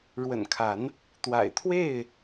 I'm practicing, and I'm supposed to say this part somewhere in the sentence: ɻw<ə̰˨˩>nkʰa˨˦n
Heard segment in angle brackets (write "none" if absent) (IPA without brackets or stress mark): ə̰˨˩